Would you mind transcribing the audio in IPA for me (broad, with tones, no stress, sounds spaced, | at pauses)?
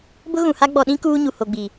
b ʊ˦ ɣ ũ˨ h a˦ ɡ͡b ɔ˨ ɗ ĩ˦ k uː˦ ɲ u˨ h o˨ ɡ͡b i˨